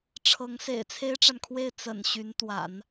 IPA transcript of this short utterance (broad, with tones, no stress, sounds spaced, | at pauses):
ʈ͡ʂʰ ɤ˧˥ ŋ s ḛ˨˩ ɪ̯ t͡sʰ e˥ ɪ̯ ʈ͡ʂ a˨ n kʰ w e˥˩ ɪ̯ t͡s ə̰˨˩ n ɕ y˧˥ n t̪ w a̰˨˩˦ n